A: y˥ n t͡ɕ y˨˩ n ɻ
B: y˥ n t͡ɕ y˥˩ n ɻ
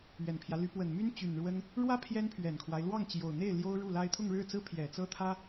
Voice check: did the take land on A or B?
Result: A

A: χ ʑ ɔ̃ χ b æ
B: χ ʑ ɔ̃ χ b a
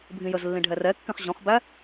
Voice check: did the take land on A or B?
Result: A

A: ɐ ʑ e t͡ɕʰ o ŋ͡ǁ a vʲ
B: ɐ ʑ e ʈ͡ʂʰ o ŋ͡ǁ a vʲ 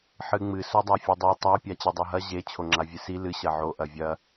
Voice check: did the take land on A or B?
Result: A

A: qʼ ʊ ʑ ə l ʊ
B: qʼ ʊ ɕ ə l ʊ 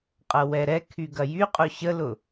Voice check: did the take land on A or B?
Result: B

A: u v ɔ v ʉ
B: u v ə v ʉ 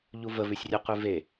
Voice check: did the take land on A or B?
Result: B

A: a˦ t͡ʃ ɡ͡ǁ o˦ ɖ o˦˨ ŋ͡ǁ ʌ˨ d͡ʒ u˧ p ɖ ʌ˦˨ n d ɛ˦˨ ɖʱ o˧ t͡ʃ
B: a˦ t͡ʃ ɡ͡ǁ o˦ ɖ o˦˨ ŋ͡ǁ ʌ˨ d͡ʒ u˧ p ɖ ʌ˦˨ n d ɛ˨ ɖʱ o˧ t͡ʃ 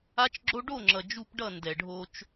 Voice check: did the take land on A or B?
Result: B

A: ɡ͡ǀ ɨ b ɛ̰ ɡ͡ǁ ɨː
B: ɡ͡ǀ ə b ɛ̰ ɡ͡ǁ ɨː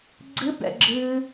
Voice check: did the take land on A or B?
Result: A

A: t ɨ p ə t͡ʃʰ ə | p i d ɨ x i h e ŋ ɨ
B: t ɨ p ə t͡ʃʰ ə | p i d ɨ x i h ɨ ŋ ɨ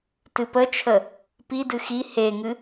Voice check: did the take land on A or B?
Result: A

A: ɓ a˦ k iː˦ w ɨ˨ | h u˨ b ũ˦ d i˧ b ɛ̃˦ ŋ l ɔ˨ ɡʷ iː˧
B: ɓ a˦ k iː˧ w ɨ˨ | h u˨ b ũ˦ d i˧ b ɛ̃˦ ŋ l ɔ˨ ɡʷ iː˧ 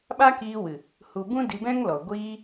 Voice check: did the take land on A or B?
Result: B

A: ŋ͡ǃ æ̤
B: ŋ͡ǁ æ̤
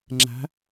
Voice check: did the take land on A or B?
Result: B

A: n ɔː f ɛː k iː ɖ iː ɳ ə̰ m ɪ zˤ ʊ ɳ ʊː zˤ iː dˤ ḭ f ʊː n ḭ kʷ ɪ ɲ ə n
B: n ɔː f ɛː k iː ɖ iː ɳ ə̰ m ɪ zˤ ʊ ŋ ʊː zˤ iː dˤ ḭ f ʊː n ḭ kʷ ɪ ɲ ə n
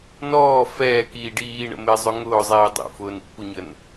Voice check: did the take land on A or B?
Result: B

